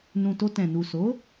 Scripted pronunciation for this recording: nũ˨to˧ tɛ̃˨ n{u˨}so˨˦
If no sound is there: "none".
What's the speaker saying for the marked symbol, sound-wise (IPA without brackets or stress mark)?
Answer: u˨